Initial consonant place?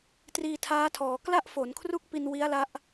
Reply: alveolar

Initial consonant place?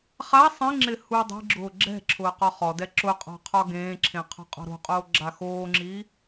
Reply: uvular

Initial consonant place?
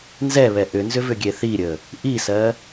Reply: alveolar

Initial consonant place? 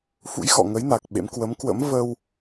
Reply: labial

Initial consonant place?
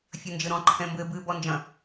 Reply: labial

